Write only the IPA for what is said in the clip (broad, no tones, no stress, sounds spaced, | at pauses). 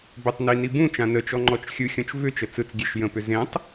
b ʏ tˤ n i n i b ũ t͡ʃ ã n ə t͡ʃ ɔ ŋ͡ǃ ɔ t͡ʃ xʲ ɯ xʲ ɔ̃ t͡ʃ v ʏ t͡ʃ ə t͡s ɯ t͡s ɡʲ e ʃ j ə̃ p ʏ z ẽ tˤ